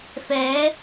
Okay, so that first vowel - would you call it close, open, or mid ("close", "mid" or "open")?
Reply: mid